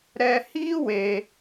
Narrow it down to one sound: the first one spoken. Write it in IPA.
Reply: ɾ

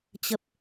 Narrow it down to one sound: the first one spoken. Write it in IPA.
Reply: t͡ɕ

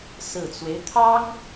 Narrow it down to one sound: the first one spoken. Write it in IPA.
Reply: s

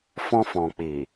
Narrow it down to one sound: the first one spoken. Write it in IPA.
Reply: f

